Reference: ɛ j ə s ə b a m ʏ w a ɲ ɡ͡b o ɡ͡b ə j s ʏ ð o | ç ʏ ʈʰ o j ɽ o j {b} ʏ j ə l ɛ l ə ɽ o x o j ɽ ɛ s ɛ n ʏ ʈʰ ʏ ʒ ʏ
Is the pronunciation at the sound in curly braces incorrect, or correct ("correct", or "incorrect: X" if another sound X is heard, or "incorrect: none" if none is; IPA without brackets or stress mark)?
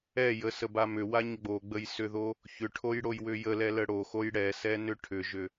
incorrect: w